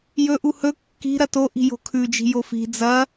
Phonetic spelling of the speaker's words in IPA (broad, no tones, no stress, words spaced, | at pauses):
jɵʔu hɵ kːi̤ ɾɐtoʔi̤ jo̤kʰʉd͡ʒi̤ jofi̤ d͡zɐ